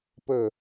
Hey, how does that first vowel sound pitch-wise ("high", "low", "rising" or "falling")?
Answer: falling